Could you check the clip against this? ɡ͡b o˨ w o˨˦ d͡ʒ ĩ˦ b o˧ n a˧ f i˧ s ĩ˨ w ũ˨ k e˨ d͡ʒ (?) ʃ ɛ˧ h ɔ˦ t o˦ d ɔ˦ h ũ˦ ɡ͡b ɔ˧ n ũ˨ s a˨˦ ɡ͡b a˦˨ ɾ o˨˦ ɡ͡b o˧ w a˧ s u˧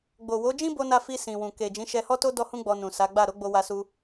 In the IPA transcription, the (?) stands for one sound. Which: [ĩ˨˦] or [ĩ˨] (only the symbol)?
ĩ˨˦